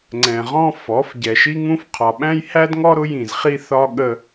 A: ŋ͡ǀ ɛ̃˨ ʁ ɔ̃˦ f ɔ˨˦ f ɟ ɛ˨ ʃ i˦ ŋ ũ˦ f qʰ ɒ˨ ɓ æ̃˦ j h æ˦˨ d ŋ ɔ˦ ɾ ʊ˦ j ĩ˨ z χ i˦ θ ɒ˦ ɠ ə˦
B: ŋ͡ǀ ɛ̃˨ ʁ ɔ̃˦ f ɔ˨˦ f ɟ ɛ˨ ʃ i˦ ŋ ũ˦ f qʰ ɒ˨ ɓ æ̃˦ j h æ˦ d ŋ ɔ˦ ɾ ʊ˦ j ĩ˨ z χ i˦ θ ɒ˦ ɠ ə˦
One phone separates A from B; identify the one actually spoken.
B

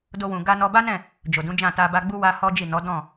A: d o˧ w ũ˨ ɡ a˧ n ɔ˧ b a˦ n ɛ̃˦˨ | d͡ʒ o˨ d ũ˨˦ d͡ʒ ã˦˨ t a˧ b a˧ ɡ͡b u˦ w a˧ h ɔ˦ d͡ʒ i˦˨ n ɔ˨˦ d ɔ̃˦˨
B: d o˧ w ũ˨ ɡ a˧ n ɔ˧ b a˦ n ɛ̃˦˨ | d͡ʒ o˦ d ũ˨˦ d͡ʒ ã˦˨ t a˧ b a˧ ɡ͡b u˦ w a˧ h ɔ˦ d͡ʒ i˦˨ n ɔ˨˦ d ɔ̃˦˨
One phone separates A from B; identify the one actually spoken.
A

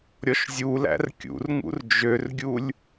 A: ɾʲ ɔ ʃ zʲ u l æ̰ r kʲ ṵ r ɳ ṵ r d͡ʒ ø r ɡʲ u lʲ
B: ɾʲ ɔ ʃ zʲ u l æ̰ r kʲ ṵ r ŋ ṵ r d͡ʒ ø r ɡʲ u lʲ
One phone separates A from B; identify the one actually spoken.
B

